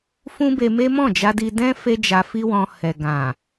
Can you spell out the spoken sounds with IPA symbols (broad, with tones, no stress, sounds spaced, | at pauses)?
f ũ˦ b e˧ m e˦ m ɔ̃˦˨ d͡ʒ a˧ d i˧ d ɛ̃˦ f e˦ d͡ʒ a˧ f i˦ w ɔ̃˧ h ɛ˨ ɡ ã˨